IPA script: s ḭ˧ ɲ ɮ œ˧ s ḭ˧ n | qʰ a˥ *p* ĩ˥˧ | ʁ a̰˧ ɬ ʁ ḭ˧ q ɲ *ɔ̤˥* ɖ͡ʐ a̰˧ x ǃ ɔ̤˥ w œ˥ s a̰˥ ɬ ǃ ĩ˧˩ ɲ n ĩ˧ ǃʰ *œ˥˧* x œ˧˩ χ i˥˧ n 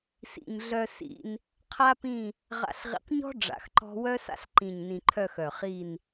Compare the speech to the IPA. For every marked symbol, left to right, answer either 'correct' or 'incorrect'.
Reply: correct, correct, correct

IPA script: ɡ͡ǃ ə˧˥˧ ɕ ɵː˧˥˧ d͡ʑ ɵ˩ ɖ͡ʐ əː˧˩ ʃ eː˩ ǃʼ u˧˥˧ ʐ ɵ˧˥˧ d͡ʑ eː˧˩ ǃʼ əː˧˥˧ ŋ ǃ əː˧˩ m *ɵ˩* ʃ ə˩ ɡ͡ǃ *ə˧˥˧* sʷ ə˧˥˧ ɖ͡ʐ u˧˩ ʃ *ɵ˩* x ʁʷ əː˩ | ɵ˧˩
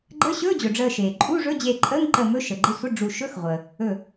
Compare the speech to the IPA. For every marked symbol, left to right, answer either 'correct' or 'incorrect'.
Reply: incorrect: ɵ˧˥˧, correct, incorrect: ɵ˧˥˧

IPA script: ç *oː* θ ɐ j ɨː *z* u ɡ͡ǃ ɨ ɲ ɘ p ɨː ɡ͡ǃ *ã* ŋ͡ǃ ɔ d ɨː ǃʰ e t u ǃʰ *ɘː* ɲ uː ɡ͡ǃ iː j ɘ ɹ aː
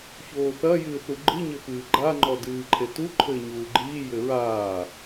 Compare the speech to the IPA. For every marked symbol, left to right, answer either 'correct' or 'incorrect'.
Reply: correct, incorrect: θ, incorrect: a, correct

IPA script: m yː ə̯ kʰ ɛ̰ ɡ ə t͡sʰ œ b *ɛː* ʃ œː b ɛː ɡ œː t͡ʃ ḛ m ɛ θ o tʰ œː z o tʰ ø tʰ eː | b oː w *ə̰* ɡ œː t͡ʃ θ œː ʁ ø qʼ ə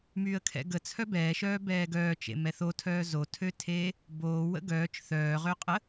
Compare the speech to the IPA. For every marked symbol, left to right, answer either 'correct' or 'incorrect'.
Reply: correct, correct

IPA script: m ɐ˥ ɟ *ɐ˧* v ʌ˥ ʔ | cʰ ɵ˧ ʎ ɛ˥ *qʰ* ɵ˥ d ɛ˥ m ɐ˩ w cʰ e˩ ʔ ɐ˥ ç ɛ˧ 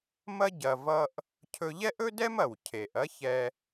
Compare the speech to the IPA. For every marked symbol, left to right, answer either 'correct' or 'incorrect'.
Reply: correct, incorrect: ʔ

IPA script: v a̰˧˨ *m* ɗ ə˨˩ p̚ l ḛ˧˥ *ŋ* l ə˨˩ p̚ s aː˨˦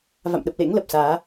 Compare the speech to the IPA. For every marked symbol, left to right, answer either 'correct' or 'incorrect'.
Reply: correct, correct

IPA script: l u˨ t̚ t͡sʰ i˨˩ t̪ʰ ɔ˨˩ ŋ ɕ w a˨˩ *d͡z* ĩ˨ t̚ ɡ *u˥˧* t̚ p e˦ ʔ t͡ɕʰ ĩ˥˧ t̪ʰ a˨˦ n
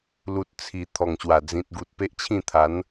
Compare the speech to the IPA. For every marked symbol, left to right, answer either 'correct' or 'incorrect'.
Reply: correct, incorrect: u˨

